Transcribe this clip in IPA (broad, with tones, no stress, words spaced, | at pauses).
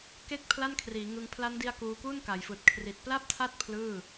ke˥˩k̚pʰla˥˩nkʰriː˩˦ŋɯ˧ŋ pʰla˦˥ndi˧a̯ kuː˧ku˥˩nka˩˦jfɯː˨˩t̚ kʰri˨˩t̚pla˥˩p̚tʰa˥˩t̚ pʰlɯː˥˩